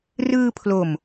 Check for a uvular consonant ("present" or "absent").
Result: absent